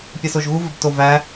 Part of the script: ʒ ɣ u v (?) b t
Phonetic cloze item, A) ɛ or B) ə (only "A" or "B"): B